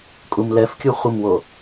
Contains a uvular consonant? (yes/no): yes